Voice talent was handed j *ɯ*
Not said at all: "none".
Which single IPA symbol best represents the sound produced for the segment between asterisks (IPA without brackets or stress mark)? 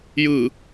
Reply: ɯ